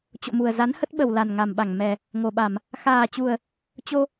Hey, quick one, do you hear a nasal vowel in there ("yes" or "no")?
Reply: no